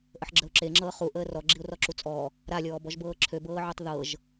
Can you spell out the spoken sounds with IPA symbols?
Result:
ʔəħɡ͡ǁəʊ̯ǁeŋ͡ǁɤː χu ʔəːrɔ ɡ͡ǁiʊ̯rɔǁut͡sʼɔ | ɾalʲɔːbɔʒbɤː ǁʰøbɤːʕøtˤ ðɤʒ

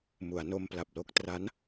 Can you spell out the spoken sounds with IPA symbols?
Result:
mu˩˦a̯no˧mpla˨˩p̚ lo˥˩k̚ tra˦˥n

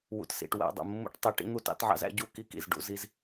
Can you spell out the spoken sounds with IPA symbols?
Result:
wṵ˨tsḭ˨ʈ wæ̰˦˨ dˤṵ˨mːṵ˦ʈ tˤi˨ ʈḭ˦n̪u˦˨tɑ̰˦tʕɑ̰˦z æ̰˦ ɟu˦ ki˦kḭ˨z ɖṵ˨˦zi˦z

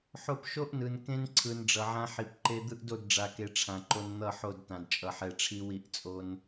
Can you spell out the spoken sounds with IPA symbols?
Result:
ħo˦p ʃo˦ʔnɯ˨n kẽ˦nǀʰɯ˨n ɖ͡ʐʌ˨ʕã˦ ħi˨p ǃe˦ d̪ɯ˦ʔdo˦˨dɖ͡ʐa˨ke˨ ʈ͡ʂʰã˨ǃo˦n n̪ʌ˦˨ħo˦˨d tã˨dt͡ʃʼʌ˨ħɛ˨ ʈ͡ʂʰi˦wi˦˨ʔ t͡sʼo˦n

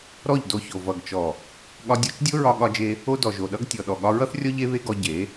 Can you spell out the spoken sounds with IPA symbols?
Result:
ɾɔ˦˨ʎdo˧ço˨ vʌ˨ɡt͡ʃɔ˨ | ɠɒ˧dʲɔ˧t͡ʃ dʲo˦ɹɒ˧ ɠɒ˧d͡ʒe˧ | o˦dɔ˨ʒo˨ɗʌ˦ɡ tʲɔ˨ ɗɔ˨ɠɒ˧ɹʌ˦θrʲɔ˦ ʎe˦βe˦ɡɔ˧ ɟe˨˦

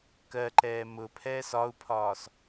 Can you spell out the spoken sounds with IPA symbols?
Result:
kɜǃɛː mʊpʰɛːs ɒu̯pʰɒːs

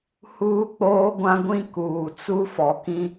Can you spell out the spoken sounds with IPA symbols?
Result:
huː˦k͡poː˦ɡʷã˦ɡʷĩ˦ kuː˨t͡su˦fɔ˨kĩ˦

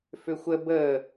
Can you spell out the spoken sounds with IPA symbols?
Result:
fʏxʷə bə

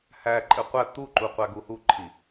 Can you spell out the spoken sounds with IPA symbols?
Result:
hæǃʼɘ qʷæ t̪uǃuqʷæɡu huǃʰi

